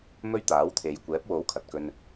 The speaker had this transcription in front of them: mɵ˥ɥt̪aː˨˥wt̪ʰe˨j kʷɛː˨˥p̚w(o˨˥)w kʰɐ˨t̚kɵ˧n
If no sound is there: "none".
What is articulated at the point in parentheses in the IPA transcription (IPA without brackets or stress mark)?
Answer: o˨˥